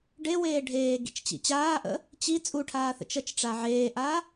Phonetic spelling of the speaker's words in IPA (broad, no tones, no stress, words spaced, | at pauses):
ɖeweː ɖʱeːɡḭt͡ʃt͡ɕḭ t͡ɕaːʔə̰ | t͡ɕi t͡sʼuʈʰaːθə̰ t͡ʃət͡ʃʈ͡ʂa ʕeːʔa